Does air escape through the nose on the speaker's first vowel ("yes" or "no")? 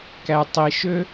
no